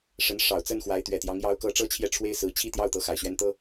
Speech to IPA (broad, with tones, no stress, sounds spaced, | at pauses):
ʂ ə˧˥ n ʂ ɑ˨˩ ʊ̯ t͡s ə˥˩ n x w a˧˥ ɪ̯ t̪ ɥ ɛ˨˩ t̪ j ɑ˧˥ ŋ j ɑ˧˥ ʊ̯ k ɤ˧˥ ʈ͡ʂ ɤ˥ t͡ɕʰ j ɛ˥˩ ʈ͡ʂʰ w e˥ ɪ̯ s ɹ̩˧˥ t͡ɕʰ i˥˧ t̪ j ɑ˥˩ ʊ̯ t̪ ɤ˧˥ x a˨˩ ɪ̯ ɕ ɥ ɛ˥ n t̪ ɤ˥